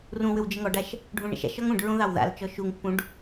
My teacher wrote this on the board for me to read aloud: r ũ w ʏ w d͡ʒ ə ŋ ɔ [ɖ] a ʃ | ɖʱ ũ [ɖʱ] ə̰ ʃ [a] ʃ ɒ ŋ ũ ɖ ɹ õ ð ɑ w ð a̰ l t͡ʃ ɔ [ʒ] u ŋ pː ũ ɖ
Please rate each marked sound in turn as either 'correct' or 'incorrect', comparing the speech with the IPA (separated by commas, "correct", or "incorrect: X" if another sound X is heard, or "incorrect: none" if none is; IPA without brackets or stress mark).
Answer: correct, incorrect: ɳ, incorrect: a̰, incorrect: ʃ